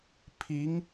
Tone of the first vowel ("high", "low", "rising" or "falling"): rising